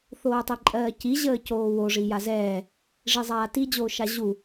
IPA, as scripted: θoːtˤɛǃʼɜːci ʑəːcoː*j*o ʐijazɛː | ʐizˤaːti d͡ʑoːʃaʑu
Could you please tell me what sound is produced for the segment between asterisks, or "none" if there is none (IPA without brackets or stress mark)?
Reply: w